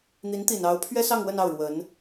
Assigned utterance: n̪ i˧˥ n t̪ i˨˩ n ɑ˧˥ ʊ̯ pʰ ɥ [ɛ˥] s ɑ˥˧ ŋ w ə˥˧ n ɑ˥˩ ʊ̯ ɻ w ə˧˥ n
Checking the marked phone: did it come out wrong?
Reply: no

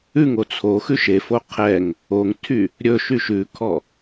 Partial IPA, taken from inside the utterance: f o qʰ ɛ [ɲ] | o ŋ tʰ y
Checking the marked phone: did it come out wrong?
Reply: yes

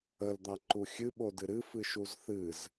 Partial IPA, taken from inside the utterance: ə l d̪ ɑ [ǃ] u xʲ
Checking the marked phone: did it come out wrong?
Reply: no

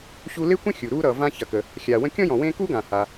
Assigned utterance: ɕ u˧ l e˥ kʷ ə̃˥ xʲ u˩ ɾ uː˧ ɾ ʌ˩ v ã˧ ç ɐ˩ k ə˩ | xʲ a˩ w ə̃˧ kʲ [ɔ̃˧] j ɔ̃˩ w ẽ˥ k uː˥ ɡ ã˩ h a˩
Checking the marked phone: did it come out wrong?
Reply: yes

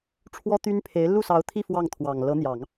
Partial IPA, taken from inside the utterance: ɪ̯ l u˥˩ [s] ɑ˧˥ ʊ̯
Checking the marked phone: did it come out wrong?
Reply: no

